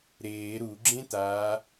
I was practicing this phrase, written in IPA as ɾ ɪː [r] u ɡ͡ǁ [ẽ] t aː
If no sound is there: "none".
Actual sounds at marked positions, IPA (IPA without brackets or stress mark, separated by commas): ɾ, ẽ